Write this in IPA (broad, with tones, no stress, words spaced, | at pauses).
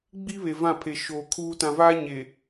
ɡ͡bi˦ βe˨vã˦˨pʰe˨ ʃoː˨kʰuː˦ tã˨vaː˦ ɲe˨